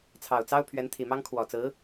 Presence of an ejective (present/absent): absent